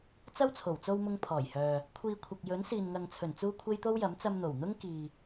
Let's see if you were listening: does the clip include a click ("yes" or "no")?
no